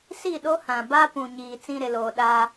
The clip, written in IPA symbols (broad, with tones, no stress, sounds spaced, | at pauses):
s i˦˨ ɗ o˦ h ã˨ b a˦ p ũ˨ ɲ iː˨ t͡s ĩ˦ ɾ ɪ˨ l oː˨ ɗ a˦